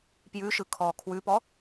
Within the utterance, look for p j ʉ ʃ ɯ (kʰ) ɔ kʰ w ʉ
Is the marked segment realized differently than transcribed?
no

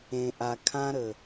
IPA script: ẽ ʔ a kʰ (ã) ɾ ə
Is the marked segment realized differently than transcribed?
no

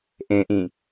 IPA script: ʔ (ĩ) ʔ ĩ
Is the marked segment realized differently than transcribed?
yes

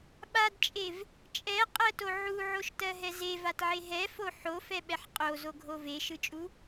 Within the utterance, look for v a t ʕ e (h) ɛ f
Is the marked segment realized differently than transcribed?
yes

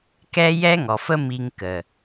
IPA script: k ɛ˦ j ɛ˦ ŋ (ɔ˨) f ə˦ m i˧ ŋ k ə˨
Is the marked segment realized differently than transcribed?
no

